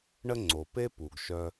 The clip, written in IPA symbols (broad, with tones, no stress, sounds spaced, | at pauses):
ɳ ə˥ ŋ͡ǀ o˩ p e˥ p u˩ ɡ ʃ œ˧